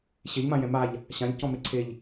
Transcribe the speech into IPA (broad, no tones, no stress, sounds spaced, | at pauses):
ɕ e ʎ m ã j ɛ̃ m a ʎ | ɕ ã ʎ c ɔ̃ m e ǀʰ e ʎ